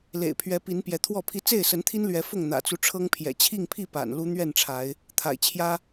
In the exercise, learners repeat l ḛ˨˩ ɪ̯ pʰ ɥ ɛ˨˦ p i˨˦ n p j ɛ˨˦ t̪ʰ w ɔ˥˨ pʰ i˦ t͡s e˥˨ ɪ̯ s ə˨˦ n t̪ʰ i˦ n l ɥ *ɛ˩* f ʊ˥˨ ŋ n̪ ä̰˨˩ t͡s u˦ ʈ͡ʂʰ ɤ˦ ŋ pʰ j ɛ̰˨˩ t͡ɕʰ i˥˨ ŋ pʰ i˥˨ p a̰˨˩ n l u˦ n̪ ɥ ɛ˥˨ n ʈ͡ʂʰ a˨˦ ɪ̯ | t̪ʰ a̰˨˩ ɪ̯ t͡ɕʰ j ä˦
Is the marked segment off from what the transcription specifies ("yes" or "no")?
yes